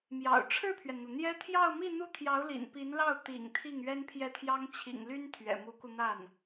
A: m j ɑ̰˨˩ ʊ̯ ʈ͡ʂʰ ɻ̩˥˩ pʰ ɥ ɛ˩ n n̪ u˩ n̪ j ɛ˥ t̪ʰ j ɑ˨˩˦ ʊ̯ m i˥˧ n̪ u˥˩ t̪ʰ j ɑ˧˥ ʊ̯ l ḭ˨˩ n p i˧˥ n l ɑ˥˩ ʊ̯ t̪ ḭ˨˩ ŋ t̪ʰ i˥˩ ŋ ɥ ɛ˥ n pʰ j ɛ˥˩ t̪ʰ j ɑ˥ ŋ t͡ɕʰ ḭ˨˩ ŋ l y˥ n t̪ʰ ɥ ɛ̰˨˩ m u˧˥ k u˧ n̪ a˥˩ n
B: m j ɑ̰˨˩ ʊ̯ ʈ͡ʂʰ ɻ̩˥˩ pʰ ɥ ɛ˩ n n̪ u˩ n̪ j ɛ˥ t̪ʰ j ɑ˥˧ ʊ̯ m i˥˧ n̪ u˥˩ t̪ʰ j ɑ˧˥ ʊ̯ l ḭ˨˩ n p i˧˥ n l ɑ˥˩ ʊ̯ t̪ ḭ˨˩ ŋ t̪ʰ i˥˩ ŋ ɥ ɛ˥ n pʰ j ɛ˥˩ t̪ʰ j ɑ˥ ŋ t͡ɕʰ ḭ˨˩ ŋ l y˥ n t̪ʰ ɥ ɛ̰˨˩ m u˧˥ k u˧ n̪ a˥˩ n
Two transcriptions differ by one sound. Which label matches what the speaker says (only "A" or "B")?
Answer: B